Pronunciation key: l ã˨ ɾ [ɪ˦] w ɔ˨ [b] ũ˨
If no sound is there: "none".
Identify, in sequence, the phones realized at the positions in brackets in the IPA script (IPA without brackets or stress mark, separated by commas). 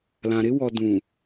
ɪ˦, d